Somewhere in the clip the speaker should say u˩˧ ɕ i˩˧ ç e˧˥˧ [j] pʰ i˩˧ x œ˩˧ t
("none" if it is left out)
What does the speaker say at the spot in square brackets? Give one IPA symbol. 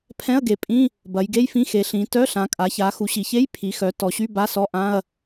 j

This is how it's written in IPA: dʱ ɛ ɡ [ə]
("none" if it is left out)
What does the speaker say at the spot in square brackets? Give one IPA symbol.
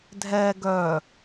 œ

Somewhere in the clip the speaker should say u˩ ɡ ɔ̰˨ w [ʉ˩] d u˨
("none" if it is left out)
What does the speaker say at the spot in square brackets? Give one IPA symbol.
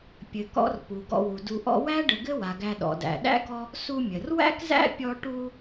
u˩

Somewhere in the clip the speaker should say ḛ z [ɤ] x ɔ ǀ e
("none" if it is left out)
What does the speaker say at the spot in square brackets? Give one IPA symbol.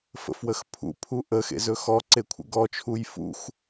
ɵ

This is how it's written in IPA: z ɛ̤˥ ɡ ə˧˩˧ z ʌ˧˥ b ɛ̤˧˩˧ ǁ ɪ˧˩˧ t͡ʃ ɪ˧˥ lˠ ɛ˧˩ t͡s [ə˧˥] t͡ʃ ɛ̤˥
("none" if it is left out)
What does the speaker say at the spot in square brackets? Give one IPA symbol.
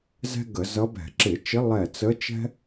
ə˧˥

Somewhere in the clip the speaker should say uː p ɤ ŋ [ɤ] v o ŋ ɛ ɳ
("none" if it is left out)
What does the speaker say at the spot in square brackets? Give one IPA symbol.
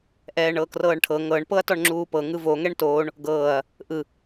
ɯ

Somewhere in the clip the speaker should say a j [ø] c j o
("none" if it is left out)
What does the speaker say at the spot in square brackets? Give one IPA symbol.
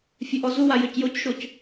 ø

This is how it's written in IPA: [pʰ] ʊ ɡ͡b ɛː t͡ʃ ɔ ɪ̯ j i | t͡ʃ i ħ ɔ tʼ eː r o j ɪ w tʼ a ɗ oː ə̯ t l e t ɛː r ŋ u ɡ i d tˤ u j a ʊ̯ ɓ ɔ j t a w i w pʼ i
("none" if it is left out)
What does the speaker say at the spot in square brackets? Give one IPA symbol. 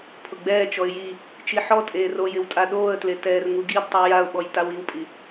pʰ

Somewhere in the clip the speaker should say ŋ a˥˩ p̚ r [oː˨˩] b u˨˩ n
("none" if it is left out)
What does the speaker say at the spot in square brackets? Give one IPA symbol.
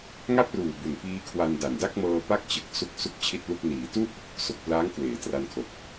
uː˨˩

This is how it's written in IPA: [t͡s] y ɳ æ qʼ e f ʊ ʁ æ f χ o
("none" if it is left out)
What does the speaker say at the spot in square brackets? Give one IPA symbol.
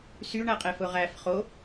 s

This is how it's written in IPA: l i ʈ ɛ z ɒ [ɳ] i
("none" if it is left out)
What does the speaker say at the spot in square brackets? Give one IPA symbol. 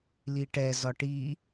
ʈ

